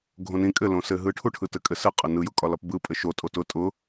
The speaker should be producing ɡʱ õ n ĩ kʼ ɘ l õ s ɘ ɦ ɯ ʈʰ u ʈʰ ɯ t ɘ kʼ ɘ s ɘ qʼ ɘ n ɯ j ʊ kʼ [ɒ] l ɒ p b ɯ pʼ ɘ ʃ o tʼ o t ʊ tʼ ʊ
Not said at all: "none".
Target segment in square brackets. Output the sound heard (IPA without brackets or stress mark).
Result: ɒ